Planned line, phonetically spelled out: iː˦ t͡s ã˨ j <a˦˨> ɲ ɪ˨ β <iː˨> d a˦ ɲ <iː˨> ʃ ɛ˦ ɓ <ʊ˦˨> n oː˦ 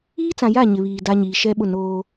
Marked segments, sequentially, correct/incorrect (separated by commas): correct, correct, correct, correct